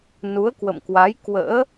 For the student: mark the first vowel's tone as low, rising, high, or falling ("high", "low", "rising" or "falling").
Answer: rising